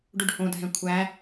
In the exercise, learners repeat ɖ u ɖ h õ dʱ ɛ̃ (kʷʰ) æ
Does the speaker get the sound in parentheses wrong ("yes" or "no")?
no